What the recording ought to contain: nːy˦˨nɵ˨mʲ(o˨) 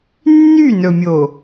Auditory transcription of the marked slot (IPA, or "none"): o˨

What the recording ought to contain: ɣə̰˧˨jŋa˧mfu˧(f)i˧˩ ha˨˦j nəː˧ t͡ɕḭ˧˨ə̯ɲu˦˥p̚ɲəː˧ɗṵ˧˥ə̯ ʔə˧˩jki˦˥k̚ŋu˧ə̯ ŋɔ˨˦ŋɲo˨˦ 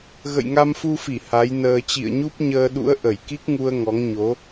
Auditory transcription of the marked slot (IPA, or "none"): f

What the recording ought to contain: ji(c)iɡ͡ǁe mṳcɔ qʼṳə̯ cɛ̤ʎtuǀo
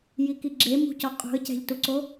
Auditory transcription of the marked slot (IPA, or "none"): k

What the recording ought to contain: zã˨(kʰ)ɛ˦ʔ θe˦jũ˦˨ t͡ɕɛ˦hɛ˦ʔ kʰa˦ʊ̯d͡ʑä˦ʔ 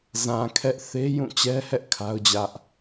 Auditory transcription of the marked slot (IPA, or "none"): kʰ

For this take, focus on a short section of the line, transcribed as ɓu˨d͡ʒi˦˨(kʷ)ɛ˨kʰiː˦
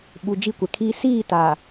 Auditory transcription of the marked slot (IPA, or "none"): kʷ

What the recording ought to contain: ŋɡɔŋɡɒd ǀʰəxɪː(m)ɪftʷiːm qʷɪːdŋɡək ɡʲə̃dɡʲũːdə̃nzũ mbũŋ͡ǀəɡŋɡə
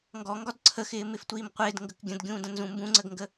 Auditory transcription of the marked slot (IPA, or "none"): m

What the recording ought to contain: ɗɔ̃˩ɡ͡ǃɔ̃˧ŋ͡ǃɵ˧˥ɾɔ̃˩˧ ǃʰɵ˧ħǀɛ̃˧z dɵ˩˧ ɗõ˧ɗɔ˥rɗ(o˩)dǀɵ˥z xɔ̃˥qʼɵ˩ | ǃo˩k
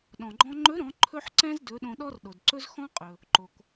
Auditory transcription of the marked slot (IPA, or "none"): o˩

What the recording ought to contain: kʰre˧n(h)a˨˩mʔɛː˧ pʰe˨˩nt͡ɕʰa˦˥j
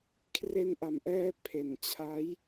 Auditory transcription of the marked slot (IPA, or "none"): ʔ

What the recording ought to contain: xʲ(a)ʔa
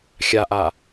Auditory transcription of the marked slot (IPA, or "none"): a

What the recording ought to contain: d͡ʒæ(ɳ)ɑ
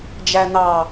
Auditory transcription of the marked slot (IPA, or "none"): n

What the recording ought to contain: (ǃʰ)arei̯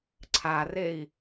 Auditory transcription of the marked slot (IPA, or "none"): ǀʰ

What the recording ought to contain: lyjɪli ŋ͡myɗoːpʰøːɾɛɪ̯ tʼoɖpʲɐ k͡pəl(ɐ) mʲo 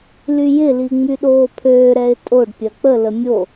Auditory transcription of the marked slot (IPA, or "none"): ə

